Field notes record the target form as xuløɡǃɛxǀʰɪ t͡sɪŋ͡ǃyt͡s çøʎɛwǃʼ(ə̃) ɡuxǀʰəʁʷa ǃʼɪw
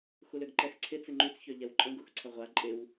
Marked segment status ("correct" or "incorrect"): correct